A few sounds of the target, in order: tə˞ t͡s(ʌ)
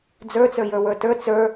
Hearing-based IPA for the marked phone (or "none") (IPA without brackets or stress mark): ə˞